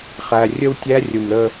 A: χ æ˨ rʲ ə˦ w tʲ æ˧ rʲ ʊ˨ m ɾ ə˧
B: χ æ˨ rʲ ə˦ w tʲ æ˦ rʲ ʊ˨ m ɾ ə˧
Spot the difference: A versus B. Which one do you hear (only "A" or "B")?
B